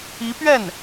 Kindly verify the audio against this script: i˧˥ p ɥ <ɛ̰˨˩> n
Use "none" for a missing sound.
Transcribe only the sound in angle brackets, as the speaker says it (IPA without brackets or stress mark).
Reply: ɛ˥˩